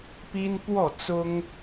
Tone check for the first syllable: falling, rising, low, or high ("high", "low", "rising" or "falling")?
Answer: high